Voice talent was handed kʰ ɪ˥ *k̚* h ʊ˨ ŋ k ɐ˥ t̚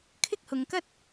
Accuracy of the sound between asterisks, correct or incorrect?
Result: correct